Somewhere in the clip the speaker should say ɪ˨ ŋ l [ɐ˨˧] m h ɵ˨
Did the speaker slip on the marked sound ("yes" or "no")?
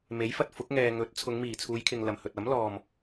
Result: yes